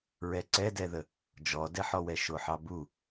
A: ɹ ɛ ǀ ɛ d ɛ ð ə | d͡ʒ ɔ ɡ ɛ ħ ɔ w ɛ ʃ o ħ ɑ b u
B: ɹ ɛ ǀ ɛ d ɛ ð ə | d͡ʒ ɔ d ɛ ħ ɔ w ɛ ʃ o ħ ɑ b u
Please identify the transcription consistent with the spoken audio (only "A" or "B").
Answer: B